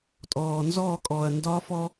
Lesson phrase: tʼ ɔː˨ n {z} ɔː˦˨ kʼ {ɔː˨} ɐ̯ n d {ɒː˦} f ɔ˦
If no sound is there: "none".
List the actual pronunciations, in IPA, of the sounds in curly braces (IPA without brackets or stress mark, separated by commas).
z, ɔː˨, ɒː˦